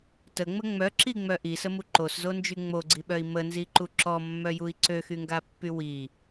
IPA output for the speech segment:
t ə ŋ͡m ə ŋ͡m œ ǁ i ŋ͡m œ ʔ i s ə m u ǃ o s z o n d͡ʒ y ŋ͡m o ɡ͡ǀ i ɓ œ i̯ m ə n z i ǃ u ǁ ɔ mː œ j u i̯ ǀ ø x y ŋ ɡ a pː y w i

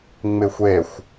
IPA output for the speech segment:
ŋ͡m ɪ xʷ e xʷ

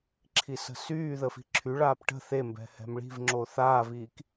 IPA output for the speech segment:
ǁʰ i s ə̤ s yː ð ə f i̤ ǁʰ y ɭ aː p ʈ ə̤ θ e m b ɛ̤ h ɛ̤ m ɭ i̤ v ŋ͡ǁ o θ aː v iː k

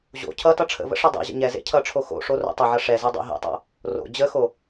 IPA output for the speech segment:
ʑ o̰ cʰ ʌ t ʌ ʈ͡ʂʰ ə̰ v ə̰ ʂ ʌ dˤ ḛ ʑ ə̰ ɲ ɛ z ḛ cʰ ʌ ʈ͡ʂʰ o x o̰ ʂ o r o̰ tˤ ʌ ʕ ʌ ʂ ɛ z e dˤ o̰ ɦ ḛ tˤ o̰ | r o̰ d͡ʑ ə x o

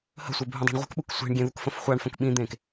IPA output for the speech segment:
h ə̤ sʷ e bʱ ũ dˤ a̤ ɳ ʁʷ ə̤ k ɓ u k sʷ e̤ ɳ ɡʲ ẽ ð u k f ə̃ f χʷ a ɳ f ə̃ k ɓ ĩ d̪ ẽː k

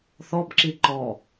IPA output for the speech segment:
θ ɔ b ǁ i ǃ ɔ

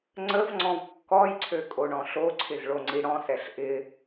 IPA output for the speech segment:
ŋ͡ǀ ə v ŋ͡ǀ ɔ̃ v kː ɔ j ǀʰ ø kʼ o ɳ ɔ̃ ɬ o ǀʰ ɪ z ɭ o ŋ͡ǀ i ɽ ɔ̃ s ɛ ɬ ʔ ɪ

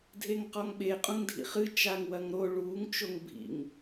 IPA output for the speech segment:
dʱ e ŋ q ɔ ŋ ɓ e qʼ ũ ŋ dʱ ḭ χ ɨ t͡ʃ a ŋ w ɐ ŋ ɾ o ɭ uː ŋ t͡ʃ o ŋ bʱ ḭ ŋ

